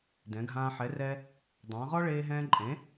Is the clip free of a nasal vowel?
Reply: no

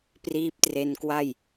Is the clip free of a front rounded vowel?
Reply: yes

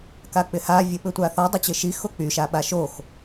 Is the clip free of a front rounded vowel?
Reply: no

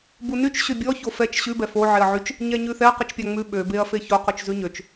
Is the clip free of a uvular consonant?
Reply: no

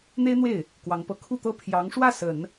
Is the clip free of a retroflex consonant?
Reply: no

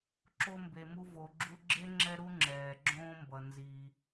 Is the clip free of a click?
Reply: no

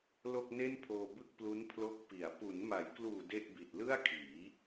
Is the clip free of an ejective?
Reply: yes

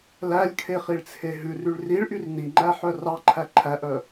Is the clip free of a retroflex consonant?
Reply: no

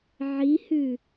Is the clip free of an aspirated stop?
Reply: yes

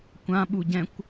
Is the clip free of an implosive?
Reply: no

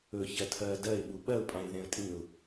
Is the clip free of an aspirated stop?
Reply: no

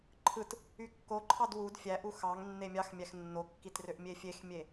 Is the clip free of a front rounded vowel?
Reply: no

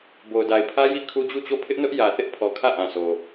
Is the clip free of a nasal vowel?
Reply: no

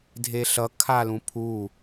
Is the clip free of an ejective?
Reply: yes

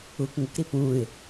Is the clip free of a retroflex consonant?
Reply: yes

